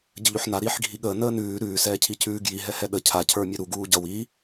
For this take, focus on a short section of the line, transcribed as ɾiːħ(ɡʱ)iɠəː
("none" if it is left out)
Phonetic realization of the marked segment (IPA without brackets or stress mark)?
ɡʱ